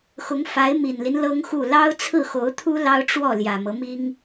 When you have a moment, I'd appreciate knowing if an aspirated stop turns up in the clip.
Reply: yes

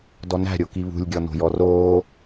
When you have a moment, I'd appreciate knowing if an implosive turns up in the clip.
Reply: no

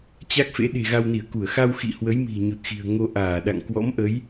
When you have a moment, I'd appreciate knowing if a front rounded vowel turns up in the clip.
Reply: no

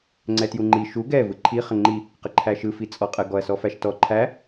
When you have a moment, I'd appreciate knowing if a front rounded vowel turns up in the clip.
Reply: no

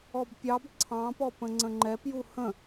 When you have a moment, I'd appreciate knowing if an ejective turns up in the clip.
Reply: no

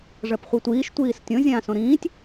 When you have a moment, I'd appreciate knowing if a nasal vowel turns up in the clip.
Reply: yes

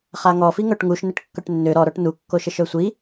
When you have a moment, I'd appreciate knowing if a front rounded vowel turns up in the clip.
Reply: yes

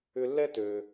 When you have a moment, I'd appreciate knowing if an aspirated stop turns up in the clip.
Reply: no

